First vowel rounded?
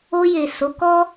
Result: yes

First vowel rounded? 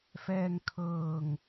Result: no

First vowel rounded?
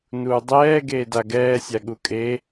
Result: yes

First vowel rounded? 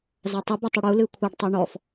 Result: no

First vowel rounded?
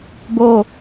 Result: yes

